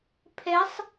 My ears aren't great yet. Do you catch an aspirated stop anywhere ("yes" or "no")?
yes